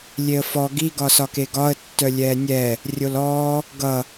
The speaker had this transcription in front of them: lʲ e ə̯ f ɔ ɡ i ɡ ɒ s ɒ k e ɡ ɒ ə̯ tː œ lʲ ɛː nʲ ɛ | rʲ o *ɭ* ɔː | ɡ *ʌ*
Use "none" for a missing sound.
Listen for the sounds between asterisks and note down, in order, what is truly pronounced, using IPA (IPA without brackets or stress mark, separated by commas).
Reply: l, ʌ